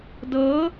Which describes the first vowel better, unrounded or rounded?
unrounded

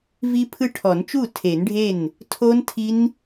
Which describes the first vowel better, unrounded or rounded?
unrounded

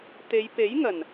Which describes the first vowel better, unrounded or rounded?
unrounded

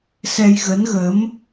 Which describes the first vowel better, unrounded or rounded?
unrounded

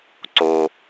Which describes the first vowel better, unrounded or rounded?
rounded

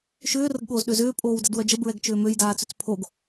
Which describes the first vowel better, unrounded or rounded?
rounded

